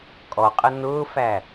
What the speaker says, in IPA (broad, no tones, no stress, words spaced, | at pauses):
kʼɔqʼə nʊːfæ